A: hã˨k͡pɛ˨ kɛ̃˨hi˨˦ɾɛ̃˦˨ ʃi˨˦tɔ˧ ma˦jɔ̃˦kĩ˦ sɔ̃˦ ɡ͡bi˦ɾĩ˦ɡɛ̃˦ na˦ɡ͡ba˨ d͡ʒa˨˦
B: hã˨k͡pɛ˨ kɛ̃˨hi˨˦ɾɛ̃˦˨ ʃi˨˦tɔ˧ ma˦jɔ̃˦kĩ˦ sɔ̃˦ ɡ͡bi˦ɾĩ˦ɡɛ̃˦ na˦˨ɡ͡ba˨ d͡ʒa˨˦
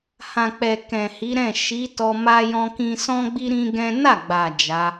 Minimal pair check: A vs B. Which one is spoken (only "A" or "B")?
B